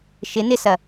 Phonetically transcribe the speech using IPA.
ʃɪ nɪsɐ

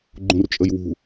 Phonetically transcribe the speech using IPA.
ɡ͡ǃũrt͡ʃʼəjwṳ

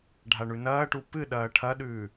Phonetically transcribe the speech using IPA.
ɖʱaɳʉnɐːʈu pɨɗɐː ʈʰɐɗʉː

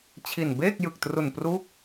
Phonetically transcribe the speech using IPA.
t͡ɕʰi˨˩nbeː˥˩k̚jɯ˨˩k̚tru˨˩n pruː˥˩k̚

